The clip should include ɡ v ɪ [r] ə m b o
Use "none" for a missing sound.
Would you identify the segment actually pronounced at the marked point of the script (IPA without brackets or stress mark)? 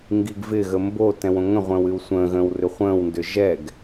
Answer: ɣ